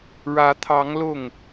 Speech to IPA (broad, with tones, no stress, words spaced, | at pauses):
ɻä˧˥t̪ʰɑ˧˥ŋ lʊ˥˩ŋ